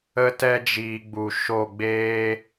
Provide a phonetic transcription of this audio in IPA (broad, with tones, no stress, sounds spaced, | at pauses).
ə˧ t ɛ˧ d͡ʒ iː˨ ɡ͡b u˨ ʃ o˦˨ ɡ͡b eː˦